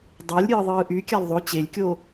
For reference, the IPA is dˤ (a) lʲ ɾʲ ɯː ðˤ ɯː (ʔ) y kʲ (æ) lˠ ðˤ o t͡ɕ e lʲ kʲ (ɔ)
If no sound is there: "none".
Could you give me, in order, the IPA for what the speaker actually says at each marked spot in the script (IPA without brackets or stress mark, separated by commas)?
ɑ, ʔ, æ, o